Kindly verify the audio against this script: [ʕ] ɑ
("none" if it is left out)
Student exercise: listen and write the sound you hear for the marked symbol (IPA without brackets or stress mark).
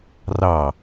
r